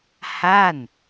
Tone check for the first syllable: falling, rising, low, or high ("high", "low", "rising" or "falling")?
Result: falling